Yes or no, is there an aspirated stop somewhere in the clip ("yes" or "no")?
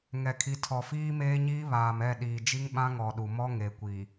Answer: yes